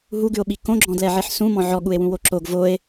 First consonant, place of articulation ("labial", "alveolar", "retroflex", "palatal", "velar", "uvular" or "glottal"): glottal